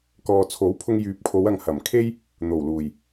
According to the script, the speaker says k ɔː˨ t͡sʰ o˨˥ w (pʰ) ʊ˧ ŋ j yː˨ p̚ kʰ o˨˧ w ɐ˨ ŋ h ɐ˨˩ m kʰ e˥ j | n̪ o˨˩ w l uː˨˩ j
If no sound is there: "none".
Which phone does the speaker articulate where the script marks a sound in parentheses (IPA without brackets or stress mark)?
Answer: pʰ